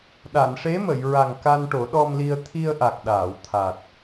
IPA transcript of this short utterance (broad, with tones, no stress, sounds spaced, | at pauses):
ɗ a˨˩˨ n ʂ e˧˥ m ə˨˩˨ j ɹ a˨˩ ŋ k a˧ n ʈ o˨˩˦ ɗ ɔ˧ m l i˧ ə̯ t̪ʰ i˧ ə̯ ʔ a˨˩ k̚ ɗ aː˨˩˨ w t̪ʰ a˨˩ t̚